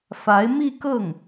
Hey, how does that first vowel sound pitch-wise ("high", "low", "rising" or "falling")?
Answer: rising